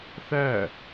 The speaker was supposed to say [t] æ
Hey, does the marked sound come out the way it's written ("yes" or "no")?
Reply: no